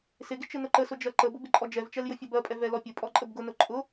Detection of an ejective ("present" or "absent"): present